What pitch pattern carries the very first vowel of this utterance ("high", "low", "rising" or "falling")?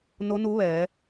rising